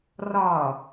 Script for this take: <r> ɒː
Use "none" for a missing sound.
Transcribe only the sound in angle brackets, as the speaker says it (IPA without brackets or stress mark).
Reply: r